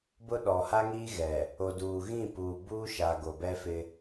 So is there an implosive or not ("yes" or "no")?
yes